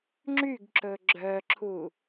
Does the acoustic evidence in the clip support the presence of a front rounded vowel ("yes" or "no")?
yes